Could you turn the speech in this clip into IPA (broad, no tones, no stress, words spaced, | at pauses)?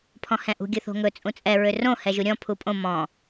pʰɔ̃hɛ̃ʔṳ ɡʲɵθo̤ŋɵ t͡sʼũt͡sʼɛ ɹørõ hɛʒuɾʲɔ̃ pʰupʼõ mɔ̃